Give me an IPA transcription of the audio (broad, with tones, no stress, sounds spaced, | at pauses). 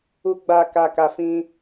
u˨ ɡ͡b a˨ k a˨ k a˨ f ĩ˧